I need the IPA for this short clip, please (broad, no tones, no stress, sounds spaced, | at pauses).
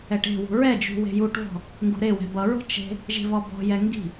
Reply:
ɛ ʈ e̤ w ṳ ɹ ɛ d͡ʒ ṳ w e̤ j u ʈ v ɔ̤ | ŋ ɡ ṳ ɾ e w ɛ̤ b ʌ ɹ ɔ̤ t͡ʃ e̤ | ʒ e̤ v ɔ b ɔ̤ j ɛ ŋ ɡ i̤